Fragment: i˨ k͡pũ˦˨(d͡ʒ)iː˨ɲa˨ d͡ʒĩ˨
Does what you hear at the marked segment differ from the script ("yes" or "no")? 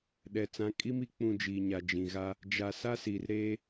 no